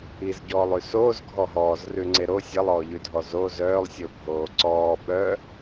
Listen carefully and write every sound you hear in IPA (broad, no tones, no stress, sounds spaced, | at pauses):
i z ɟ ɔː lˠ ʉ s oː z ɡʱ ɔ ɦ ɔː z r ʉ ŋ͡ǀ e ɾ o sʲ ɛ lˠ ɔː ʎ ʉ dʱ ɔ z o z œː lˠ sʲ o bʱ oː ǀ ɔː ɓ œ